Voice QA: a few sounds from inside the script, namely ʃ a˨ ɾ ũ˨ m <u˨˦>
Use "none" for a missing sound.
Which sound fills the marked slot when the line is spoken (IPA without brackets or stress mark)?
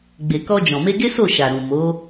o˨˦